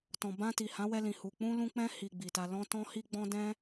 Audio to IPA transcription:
tɔ̃˨bã˧ti˨hã˨˦ wɛ˧lĩ˨hu˨ k͡pũ˧lũ˧ k͡pɛ̃˦ hi˧ɡ͡bi˨ta˧ lɔ̃˦ tɔ̃˦hi˦ɡ͡bɔ̃˦dɛ̃˦

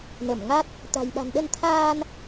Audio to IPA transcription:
nə˧˩mŋa˦˥t̚ | t̪a̤˨˩jɓa̤˨˩nɗə˧nt̪ʰaː˧n

